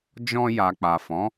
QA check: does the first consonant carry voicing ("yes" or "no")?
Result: yes